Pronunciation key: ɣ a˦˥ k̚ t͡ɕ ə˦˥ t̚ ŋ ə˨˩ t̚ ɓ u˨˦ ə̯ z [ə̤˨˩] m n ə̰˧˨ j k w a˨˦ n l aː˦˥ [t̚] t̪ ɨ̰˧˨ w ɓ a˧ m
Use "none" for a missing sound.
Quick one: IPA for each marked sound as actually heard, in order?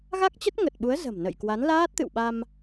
ə̤˨˩, t̚

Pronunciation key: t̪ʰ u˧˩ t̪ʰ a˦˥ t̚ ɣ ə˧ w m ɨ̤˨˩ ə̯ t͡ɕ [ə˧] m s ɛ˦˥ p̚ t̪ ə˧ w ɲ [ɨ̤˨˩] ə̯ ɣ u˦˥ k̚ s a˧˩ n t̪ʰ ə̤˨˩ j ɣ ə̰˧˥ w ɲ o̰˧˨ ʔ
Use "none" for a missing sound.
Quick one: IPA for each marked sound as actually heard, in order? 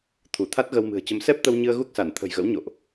ə˧, ɨ˧

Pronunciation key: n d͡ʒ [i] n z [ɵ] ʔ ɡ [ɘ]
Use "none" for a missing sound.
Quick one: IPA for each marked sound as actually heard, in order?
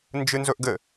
ɨ, ɵ, ɘ

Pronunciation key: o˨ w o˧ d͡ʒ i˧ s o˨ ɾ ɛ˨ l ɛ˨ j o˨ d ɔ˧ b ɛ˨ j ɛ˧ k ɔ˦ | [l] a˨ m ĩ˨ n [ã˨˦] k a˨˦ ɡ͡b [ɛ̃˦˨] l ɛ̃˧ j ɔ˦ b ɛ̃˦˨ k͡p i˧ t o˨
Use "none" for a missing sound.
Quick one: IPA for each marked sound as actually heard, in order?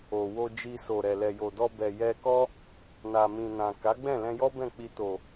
n, ã˨, ɛ̃˦˨

